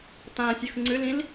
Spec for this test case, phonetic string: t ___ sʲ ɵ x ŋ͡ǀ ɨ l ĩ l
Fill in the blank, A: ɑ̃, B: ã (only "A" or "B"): B